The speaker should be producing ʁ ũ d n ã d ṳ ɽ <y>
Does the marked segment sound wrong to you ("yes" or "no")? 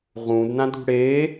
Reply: yes